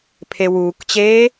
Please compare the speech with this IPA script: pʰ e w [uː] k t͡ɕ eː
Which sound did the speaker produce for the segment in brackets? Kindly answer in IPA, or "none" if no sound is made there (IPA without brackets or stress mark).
uː